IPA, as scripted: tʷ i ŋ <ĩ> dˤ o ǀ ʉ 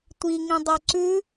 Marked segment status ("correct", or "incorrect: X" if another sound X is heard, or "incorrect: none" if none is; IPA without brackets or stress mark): correct